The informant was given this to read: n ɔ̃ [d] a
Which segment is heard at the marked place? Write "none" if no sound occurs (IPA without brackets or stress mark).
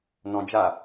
d͡ʒ